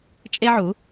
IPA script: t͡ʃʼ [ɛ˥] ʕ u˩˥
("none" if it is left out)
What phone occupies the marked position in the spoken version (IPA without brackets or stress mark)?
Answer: e˥